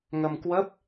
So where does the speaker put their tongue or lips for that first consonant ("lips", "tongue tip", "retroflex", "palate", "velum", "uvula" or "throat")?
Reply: velum